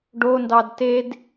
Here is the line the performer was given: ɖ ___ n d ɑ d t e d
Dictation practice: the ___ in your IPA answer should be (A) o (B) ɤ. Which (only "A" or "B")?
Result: A